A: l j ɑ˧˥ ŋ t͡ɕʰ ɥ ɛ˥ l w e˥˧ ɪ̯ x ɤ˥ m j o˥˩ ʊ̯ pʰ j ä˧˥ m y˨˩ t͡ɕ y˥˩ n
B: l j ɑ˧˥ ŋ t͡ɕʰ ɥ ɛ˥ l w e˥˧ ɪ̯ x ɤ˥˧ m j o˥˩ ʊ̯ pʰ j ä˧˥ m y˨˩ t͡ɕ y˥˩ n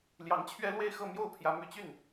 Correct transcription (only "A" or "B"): B